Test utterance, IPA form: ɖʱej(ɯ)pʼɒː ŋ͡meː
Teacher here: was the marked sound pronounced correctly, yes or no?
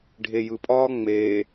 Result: yes